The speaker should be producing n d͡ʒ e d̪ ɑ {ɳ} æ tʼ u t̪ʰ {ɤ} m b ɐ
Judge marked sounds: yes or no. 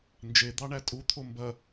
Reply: yes, no

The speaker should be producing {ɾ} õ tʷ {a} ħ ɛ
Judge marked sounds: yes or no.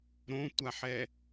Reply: yes, yes

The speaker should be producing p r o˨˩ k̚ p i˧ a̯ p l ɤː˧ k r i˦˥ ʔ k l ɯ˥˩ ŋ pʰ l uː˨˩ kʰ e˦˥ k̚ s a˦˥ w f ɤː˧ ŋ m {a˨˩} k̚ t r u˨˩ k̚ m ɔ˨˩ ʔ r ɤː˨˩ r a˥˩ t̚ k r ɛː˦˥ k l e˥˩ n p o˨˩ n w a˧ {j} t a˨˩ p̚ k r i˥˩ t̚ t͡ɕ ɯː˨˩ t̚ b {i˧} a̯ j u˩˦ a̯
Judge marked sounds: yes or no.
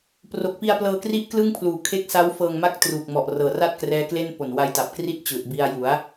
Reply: no, yes, yes

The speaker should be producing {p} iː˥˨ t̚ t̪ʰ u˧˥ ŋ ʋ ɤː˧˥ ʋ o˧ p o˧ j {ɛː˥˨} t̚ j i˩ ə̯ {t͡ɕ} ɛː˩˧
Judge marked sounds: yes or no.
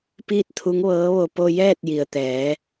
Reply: yes, yes, no

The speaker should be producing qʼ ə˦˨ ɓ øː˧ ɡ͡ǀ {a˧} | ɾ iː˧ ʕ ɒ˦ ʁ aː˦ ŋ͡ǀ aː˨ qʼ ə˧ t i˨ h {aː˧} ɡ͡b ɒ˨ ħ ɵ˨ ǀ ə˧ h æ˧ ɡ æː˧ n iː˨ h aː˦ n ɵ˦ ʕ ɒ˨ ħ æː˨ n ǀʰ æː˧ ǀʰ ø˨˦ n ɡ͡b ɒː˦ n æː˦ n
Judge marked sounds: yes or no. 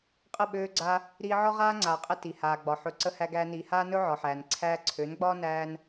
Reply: yes, no

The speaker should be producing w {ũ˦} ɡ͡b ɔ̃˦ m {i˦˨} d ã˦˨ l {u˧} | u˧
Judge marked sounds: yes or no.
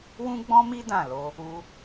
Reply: yes, no, no

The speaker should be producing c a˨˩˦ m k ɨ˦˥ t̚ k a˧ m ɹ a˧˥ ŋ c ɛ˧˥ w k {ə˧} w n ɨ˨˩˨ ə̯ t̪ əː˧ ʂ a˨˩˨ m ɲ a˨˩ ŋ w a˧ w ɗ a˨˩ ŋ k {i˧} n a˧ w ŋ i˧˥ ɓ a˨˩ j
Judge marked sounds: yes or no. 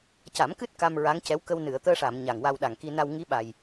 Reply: yes, yes

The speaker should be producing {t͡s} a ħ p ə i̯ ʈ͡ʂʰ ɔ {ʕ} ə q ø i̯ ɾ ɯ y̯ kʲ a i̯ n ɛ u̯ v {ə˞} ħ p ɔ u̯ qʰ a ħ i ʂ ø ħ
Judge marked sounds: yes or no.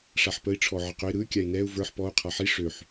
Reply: no, yes, yes

